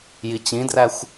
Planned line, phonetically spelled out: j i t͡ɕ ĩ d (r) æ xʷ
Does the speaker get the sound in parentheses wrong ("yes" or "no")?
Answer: no